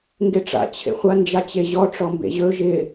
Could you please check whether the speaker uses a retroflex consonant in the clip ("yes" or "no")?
yes